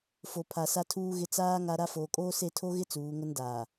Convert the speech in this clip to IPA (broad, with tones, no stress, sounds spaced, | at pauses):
f o˨ pʰ a˨ s a˦ tʰ uː˦ ɣ ɪ˦ t͡s aː˦ ŋ a˦ ɾ a˦ f oː˨ kʼ oː˦ s e˦˨ tʰ o˦ ɣ ɪ˦ t͡s uː˨˦ ŋ ʊ˦ n d aː˨